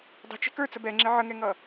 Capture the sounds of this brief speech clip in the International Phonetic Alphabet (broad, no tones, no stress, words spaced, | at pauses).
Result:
dˤə̤t͡ʃɛ̤ kə˞t͡sə bɛŋ͡ǁɪ ʕəŋɛŋʌ